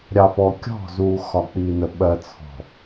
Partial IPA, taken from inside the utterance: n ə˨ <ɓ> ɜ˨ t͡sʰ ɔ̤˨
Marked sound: correct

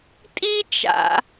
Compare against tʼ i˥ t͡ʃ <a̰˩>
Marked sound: correct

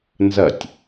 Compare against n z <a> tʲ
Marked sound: incorrect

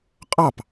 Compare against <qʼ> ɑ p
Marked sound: correct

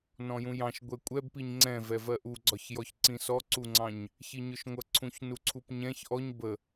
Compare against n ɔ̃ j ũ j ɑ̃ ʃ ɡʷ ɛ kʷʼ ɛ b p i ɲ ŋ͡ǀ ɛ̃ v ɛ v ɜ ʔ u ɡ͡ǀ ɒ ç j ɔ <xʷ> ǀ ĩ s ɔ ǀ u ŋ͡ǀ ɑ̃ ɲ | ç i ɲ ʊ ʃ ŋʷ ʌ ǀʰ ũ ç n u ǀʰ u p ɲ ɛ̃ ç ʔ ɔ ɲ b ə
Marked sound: incorrect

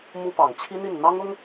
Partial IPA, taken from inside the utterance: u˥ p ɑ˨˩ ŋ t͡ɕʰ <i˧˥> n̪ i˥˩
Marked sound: incorrect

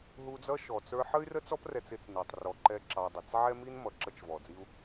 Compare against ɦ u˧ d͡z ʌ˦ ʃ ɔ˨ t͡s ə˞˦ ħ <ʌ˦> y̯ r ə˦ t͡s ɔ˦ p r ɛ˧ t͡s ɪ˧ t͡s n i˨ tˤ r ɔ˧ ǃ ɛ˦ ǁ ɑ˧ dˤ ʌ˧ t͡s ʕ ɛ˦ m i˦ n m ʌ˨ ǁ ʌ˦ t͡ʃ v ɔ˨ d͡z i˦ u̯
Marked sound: incorrect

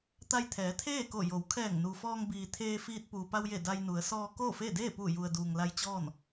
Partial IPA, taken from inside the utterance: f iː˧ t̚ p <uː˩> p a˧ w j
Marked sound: correct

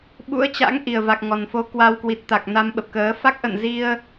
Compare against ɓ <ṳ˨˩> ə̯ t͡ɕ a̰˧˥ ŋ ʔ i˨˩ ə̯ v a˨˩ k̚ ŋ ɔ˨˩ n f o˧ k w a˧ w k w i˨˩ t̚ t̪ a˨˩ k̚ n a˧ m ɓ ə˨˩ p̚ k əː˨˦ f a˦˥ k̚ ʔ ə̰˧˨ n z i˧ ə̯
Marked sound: incorrect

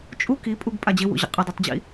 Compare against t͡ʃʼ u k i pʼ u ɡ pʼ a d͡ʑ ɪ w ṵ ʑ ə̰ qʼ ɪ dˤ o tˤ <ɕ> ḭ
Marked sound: incorrect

